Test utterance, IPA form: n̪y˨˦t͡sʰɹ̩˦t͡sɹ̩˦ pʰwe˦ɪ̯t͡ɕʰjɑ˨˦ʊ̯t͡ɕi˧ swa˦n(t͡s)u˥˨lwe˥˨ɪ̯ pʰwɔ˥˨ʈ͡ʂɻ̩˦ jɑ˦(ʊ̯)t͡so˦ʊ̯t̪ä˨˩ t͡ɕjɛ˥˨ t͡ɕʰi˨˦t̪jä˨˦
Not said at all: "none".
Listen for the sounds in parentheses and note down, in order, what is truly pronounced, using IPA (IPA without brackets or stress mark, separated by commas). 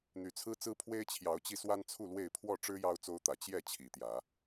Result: t͡sʰ, ʊ̯